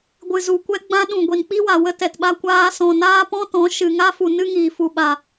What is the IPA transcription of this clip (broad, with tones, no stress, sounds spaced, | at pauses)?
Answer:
ɡʷ ɨ˨ z u˨ kʷ ɛ˧ ɡ͡b ã˧ ɗ ũ˨ ɡʷ i˨ n k͡p i˦ w a˨ w ə˦ t ɛ˨ t ɓ a˧ kʷ aː˧ s ɔ̃˨ n aː˦ p ɔ̃˦ t ɔ̃˨˦ ʃ ɨ˧ ŋ a˦ f u˨ n ɨ˦ ŋ iː˨ f u˨ ɓ a˨